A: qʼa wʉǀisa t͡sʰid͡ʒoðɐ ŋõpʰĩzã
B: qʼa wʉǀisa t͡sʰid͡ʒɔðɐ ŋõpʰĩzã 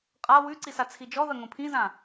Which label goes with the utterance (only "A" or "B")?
B